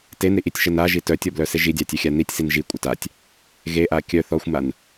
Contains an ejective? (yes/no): yes